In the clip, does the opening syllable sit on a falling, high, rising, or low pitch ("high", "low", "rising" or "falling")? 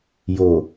low